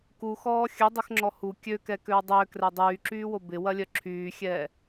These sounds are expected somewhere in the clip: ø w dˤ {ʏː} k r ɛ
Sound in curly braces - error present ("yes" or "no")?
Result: no